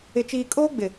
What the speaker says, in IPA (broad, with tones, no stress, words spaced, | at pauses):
ɪ˨t͡ʃiː˨kʼoː˦ ɡ͡bɪ˨